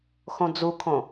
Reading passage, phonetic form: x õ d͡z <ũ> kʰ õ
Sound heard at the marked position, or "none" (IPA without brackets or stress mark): u